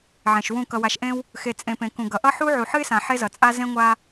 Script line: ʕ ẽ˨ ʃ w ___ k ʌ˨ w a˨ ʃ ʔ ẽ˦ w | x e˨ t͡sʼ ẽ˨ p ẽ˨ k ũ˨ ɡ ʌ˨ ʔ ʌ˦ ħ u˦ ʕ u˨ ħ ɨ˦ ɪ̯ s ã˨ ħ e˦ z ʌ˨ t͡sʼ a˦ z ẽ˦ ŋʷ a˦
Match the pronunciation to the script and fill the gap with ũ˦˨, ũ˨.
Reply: ũ˦˨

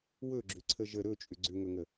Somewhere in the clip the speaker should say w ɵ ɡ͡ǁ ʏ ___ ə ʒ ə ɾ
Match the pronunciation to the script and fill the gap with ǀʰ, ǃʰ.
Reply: ǀʰ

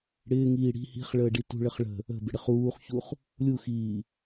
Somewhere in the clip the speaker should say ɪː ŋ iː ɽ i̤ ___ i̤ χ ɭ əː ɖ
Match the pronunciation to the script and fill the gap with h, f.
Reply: h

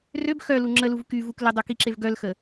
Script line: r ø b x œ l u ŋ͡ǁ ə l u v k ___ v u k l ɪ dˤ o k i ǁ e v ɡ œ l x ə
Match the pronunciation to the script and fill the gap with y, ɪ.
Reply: y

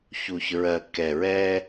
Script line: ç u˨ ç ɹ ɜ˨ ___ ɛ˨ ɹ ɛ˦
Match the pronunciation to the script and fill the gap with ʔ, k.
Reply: k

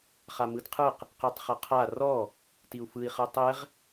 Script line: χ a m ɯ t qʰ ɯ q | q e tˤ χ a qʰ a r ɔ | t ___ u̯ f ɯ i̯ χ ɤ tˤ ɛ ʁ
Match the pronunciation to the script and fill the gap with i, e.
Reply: i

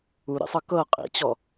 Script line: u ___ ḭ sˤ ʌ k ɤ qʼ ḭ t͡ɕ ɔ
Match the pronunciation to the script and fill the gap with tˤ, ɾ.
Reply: ɾ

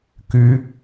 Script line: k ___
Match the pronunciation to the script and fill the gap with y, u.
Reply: y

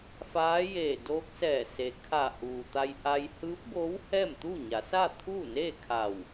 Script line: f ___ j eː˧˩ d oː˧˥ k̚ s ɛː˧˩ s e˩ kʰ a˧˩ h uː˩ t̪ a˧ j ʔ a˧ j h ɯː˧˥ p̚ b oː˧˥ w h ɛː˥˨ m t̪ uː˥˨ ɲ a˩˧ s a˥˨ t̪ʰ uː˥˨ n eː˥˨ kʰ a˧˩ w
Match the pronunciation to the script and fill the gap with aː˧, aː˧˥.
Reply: aː˧˥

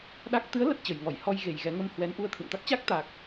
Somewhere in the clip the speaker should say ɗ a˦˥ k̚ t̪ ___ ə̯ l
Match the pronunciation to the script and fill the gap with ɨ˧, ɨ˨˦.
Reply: ɨ˨˦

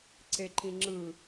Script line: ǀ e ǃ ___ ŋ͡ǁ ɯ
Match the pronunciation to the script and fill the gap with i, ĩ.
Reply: ĩ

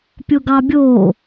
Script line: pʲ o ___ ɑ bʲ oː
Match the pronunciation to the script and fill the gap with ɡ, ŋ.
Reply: ɡ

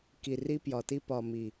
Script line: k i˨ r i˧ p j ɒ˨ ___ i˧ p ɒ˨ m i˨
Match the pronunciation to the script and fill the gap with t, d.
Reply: t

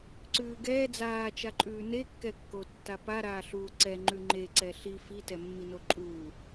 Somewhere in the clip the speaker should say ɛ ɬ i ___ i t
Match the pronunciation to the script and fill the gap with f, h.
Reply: f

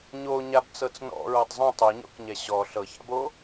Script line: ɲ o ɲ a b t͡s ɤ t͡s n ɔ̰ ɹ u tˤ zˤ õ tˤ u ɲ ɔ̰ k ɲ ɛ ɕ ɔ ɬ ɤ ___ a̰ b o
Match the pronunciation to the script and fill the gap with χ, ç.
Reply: ç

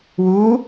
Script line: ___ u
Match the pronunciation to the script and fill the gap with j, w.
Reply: w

